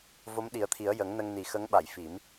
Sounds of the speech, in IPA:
v o˧˥ m ɗ i˨˩˦ ə̯ t̪ʰ i˨˩˦ ə̯ j ə˨˩˦ ŋ n ə˧ ŋ n i˨˩ x ə˧˥ ŋ ɓ a˨˩˨ j f i˨˩˦ m

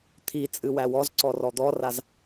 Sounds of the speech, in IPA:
t̪ʰ i t͡sʼ ɨ w æ w ɔ z ǀ ɔ r ɔ d̪ ɔ r a z

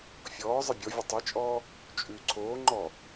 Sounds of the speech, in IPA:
fʲ ɔː zˤ ɘ bʲ ɔ vʲ ɘ tˤ i t͡ʃʼ ɔː | t͡ʃʼ ʉ ǀʰ oː ŋ͡ǃ ɔ

